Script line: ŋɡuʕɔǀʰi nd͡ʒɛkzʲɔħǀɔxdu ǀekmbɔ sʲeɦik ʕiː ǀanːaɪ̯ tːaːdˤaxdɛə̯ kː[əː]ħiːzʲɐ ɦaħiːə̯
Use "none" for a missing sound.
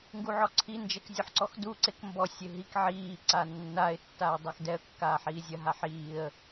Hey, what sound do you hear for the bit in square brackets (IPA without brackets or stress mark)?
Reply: aː